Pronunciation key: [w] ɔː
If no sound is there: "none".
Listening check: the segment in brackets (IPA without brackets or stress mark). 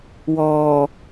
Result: w